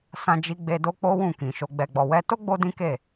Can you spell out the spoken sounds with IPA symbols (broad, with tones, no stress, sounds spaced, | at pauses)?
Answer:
s ã˦ d͡ʒ i˦ ɡ͡b e˦ d o˦ k͡p o˦ w ũ˦˨ k ĩ˨ ʃ o˧ ɡ͡b ɛ˨ ɡ͡b ɔ˨ w ɛ˧ t o˦ ɡ͡b o˦ d ĩ˦ k e˦˨